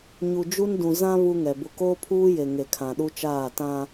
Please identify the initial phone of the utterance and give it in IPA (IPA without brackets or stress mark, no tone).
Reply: ɲ